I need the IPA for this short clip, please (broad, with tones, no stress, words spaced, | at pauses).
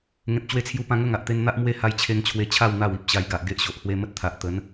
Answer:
ŋẽ˨p̚t͡ɕwe˧t͡sʰju˧pã˧ ŋə˥˧ŋ a˨ʔt̪e˧nn̪a˦ʔmwe˦ ha˧jt͡ɕʰe˧ŋt͡ɕʰwe˧t͡ɕʰa˥˧w n̪a˥˧wi˦p̚ɕa˧j ɡa˨ʔɡe˦ʔɕo˨ʔ hwe˧mə˦t̚t̪ʰa˨ʔ t̪ə˨˦n